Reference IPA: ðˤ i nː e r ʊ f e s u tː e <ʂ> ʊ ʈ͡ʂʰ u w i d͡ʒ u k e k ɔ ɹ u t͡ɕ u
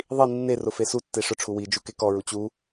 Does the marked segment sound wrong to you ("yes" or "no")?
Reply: no